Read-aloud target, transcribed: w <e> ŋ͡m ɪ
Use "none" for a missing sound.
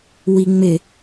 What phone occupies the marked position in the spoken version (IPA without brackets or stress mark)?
i